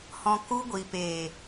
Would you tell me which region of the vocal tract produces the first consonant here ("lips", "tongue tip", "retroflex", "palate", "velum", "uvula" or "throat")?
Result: throat